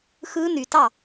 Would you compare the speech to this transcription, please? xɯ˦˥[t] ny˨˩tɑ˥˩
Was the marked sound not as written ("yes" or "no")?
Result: yes